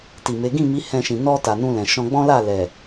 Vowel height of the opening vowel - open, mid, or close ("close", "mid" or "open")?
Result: close